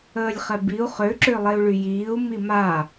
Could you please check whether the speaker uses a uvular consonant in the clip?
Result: yes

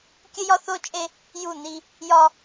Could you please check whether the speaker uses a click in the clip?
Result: no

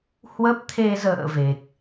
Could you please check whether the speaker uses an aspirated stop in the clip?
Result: yes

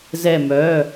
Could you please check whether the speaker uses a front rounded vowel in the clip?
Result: yes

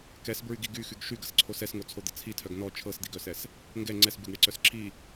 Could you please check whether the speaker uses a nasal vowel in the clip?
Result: no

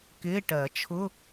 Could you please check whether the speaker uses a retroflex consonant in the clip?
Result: yes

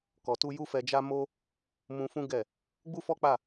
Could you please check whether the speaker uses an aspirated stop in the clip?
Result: no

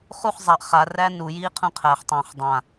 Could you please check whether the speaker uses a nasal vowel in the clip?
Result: yes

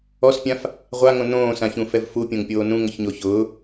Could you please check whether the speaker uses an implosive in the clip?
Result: no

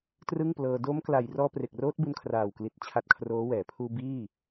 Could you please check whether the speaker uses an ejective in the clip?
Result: no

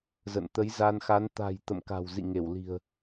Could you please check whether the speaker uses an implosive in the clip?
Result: no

